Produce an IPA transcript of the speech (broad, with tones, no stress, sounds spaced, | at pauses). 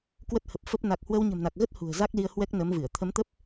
k w ə˦˥ t̚ h ə˨˩ p̚ f ə˦˥ p̚ n a˨˩ k̚ h w ə˧ w ɲ ə̤˨˩ m n a˨˩ k̚ ɣ ə˦˥ t̚ h ṳ˨˩ ə̯ z a˦˥ k̚ l i˧ ə̯ h w ɛ˦˥ k̚ n ə˨˦ m v ɨ˧˩ ə̯ t̪ʰ ə˨˦ m t̪ ə˦˥ p̚